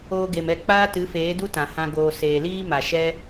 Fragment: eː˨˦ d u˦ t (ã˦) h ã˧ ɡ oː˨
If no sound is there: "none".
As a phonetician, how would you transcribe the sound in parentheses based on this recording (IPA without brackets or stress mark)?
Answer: ã˨